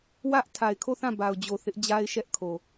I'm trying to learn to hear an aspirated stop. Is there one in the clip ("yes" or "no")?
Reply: yes